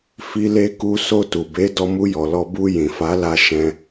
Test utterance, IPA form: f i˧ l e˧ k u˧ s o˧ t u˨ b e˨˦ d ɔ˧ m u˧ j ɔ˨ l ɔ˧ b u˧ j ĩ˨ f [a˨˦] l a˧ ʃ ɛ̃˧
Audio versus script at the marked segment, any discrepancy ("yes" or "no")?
no